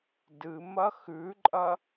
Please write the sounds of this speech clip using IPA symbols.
d ɨ m ɐ x ʉ ǃʼ ɐ

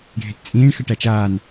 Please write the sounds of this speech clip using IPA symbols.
ɖʱ e t t͡sʼ ĩː ɳ x ə ʈ æ t͡ʃ aː n

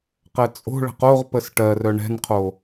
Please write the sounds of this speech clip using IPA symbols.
q ɛ t͡sʼ o̤ ɭ ə̤ q o ʁ p ə s ʈ ɜ r œ ɳ ɛ̤ n qʰ o

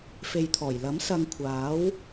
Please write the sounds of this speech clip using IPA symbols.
f e˨ j t̪ʰ ɔː˨˩ j l ɐ˨˥ m s ɐ˧ ŋ kʷʰ aː˨˥ w

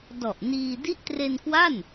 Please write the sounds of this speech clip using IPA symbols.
d ɔ˨˩ ʔ n iː˧ d i˦˥ ʔ t r e˧ n k w a˥˩ n

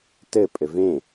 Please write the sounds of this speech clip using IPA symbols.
t ɘ pʼ ɘ v ẽ

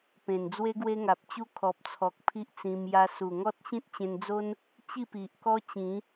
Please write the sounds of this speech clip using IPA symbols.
p ẽ˨˩ n d͡z w e˦ ɡ w e˦ ŋ a˨ p̚ t͡ɕ u˦ kʰ ɔ˨ p̚ t͡sʰ ɔ˨ k̚ pʰ i˦ ʔ t͡s ĩ˧ m j a˧ s u˨˩ ŋ ɔ˦ t̚ ɕ ĩ˦ t̚ t͡ɕ ẽ˧ n d͡z o˦ n | t͡ɕ i˥˧ p i˨ ʔ k ɔ˦ t͡ɕ ĩ˨˦

